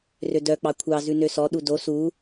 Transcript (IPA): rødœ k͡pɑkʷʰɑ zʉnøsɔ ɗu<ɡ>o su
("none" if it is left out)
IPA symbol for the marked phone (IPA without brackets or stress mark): d